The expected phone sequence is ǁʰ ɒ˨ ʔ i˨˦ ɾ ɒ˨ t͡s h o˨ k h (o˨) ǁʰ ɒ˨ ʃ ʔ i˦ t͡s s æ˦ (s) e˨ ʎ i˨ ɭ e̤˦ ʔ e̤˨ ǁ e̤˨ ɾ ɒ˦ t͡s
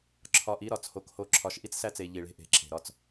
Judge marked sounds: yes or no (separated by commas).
yes, no